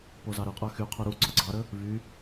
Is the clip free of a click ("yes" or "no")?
no